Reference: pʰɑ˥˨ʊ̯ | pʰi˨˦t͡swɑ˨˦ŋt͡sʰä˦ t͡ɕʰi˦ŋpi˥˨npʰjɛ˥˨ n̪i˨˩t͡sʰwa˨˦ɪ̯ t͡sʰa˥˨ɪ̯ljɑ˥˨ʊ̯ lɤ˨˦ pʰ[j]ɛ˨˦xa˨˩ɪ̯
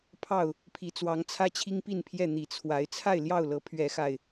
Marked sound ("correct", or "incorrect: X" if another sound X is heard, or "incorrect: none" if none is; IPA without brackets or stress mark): incorrect: ɥ